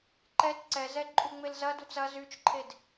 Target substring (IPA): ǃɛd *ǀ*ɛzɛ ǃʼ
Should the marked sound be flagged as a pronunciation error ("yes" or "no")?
no